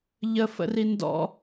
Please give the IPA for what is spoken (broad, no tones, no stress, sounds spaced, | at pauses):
ʎ ə f ə̰ r i n d ɔ̰